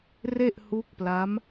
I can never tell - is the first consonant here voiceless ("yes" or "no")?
no